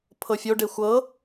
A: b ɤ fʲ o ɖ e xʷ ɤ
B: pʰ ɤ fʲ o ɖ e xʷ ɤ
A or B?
B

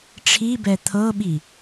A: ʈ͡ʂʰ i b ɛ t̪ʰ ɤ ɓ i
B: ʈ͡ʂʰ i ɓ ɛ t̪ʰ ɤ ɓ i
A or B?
A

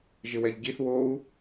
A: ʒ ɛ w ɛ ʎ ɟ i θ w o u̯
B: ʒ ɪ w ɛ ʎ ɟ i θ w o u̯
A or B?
B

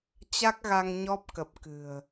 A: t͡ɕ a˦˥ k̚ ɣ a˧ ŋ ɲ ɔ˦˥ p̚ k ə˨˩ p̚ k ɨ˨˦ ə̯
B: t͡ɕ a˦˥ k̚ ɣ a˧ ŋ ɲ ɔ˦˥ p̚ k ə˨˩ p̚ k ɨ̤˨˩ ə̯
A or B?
B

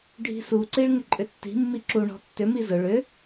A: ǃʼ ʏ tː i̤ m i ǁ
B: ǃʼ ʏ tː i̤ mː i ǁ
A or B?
B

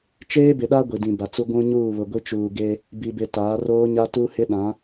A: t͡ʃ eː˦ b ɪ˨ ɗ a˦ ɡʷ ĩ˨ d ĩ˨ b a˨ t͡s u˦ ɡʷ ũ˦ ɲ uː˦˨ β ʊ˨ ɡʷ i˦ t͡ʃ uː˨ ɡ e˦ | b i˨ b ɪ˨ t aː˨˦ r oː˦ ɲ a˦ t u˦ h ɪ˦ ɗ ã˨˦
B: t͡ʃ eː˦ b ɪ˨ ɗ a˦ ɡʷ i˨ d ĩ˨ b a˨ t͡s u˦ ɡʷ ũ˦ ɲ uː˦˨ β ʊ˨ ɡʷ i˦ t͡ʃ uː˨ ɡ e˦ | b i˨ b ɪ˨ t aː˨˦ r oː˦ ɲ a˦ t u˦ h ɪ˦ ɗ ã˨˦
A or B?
B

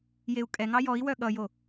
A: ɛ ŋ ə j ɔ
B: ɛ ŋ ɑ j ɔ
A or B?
B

